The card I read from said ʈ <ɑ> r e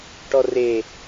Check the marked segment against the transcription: incorrect: ɔ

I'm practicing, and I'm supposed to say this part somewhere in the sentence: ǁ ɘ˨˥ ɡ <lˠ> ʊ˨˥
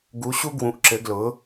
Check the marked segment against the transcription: incorrect: l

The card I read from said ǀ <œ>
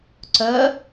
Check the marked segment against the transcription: correct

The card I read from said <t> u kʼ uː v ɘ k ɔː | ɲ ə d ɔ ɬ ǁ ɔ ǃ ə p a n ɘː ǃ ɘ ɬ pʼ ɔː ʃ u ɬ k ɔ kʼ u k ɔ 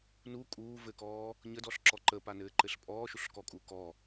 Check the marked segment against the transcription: incorrect: n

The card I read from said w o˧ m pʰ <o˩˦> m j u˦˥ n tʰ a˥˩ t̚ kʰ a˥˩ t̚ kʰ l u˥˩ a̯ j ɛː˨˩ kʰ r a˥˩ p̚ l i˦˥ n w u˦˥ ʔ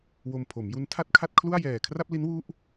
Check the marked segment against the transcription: correct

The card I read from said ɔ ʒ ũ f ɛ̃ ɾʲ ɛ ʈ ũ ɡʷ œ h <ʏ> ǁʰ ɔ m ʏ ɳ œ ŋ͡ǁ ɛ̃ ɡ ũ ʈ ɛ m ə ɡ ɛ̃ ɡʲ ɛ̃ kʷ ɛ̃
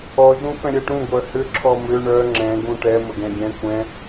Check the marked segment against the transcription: correct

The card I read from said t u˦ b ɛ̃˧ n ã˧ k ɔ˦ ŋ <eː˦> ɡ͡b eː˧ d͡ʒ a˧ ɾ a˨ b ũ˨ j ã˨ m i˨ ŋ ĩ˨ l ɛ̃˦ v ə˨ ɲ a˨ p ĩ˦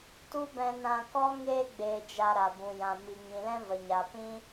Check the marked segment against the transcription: correct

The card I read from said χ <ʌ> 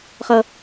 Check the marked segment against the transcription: correct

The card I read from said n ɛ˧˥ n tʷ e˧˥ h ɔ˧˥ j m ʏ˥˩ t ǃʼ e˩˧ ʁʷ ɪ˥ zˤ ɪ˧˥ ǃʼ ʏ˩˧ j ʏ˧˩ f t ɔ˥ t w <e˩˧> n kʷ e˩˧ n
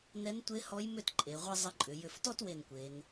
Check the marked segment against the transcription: incorrect: e˧˩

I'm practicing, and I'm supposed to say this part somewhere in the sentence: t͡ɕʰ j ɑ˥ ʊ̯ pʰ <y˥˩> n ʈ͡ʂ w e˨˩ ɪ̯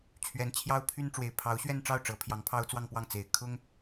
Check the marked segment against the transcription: incorrect: y˥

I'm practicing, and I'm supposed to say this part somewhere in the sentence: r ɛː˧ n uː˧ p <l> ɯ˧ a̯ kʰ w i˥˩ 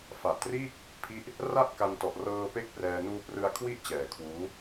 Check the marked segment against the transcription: incorrect: r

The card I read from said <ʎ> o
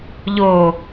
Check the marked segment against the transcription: correct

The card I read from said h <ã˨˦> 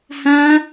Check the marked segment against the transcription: incorrect: ã˦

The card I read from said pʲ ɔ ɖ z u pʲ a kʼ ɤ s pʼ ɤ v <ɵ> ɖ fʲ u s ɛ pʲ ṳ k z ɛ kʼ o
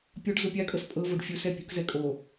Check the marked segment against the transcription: incorrect: o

